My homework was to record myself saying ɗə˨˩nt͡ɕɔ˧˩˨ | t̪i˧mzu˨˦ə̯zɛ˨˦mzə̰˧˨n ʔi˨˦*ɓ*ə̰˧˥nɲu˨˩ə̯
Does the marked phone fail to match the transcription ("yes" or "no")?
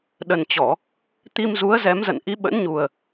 no